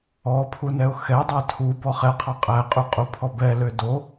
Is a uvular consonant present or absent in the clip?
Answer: present